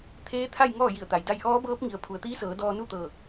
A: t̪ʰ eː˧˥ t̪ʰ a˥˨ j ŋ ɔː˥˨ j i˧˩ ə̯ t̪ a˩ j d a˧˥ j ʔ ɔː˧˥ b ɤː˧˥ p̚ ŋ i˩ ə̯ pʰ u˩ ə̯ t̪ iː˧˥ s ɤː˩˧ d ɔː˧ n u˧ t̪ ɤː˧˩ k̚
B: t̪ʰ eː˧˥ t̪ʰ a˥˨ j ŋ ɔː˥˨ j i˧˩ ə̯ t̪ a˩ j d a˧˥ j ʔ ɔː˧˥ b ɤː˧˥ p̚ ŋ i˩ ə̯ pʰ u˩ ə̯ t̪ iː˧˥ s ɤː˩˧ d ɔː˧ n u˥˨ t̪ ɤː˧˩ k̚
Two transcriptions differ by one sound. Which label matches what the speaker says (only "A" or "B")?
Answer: B